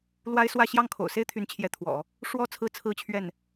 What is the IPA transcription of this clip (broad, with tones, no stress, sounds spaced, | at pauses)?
l w a˥ ɪ̯ s w ä˥˧ ɕ j ɑ˥˩ ŋ kʰ o̰˨˩ ʊ̯ s e˥ ɪ̯ t̪ʰ y˧˥ n t͡ɕʰ j ɛ˧˥ t̪ʰ w ɔ̰˨˩˦ | ʂ w ɔ˥˧ t͡sʰ ɹ̩˥˩ t͡sʰ ɹ̩˥ t͡ɕʰ ɥ ɛ˥˩ n